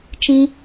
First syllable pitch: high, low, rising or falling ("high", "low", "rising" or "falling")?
high